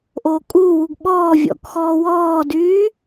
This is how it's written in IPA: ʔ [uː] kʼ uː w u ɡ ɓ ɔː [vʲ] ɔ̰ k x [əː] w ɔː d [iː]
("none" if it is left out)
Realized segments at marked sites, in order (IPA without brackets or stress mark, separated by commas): oː, vʲ, ɔː, yː